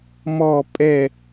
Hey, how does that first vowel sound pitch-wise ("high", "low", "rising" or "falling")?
falling